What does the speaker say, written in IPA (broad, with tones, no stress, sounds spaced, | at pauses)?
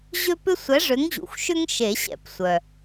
ʑ ø˦ p ʏ˦ sʷ ɛ˨˥ ʐ ʏ˨˥ ŋ ʑ ṵ˩ xʷ ʃ ʏ˦ ŋ ʃ e˨˩˦ ɕ ɛ̰˨˩˦ p sʷ œ˩